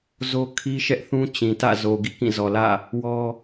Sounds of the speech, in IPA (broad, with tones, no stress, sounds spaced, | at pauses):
z o˦ kʰ i˦ ʃ ɛ˦ ʔ θ ũ˦ t͡ɕ ĩ˨ t ä̰˦˨ z o˨ ɡ ḭ˦˨ k ĩ˦˨ z ɔ˨ l ä̰˦˨ | w ɔ˦